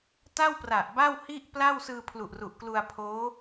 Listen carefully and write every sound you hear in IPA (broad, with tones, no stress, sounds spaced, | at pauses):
t a˥˩ w p r a˨˩ ʔ b a˥˩ w h i˥˩ ʔ p l a˥˩ w s ɯː˧ pʰ l u˨˩ ʔ r u˨˩ ʔ k l u˧ a̯ pʰ oː˦˥